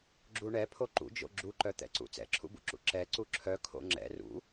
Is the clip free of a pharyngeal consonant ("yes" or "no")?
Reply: yes